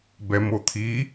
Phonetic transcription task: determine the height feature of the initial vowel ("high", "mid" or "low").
mid